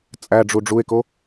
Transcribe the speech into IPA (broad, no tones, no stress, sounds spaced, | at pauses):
t͡sʼ æ ɖ͡ʐ u ɖ͡ʐ u e̯ k o